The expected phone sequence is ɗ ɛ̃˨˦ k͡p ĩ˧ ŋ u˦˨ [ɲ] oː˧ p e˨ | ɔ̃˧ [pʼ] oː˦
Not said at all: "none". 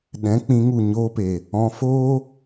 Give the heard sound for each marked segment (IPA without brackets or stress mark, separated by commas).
ɲ, f